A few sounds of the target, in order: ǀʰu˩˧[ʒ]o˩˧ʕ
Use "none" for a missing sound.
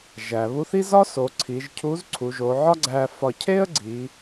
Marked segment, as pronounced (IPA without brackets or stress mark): ʒ